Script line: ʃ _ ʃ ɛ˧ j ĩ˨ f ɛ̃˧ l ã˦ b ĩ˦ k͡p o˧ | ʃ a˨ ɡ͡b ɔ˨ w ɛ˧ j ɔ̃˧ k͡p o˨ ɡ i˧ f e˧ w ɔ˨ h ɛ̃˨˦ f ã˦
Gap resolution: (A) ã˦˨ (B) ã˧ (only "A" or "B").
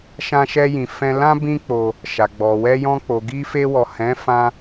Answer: B